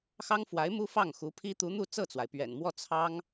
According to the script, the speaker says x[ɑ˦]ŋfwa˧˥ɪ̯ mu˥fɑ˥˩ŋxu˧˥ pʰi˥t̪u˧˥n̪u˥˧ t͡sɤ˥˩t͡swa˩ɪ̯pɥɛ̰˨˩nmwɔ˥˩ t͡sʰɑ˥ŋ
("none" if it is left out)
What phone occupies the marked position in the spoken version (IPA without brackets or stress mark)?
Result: ɑ˥